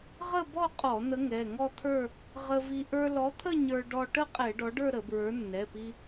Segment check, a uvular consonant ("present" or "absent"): present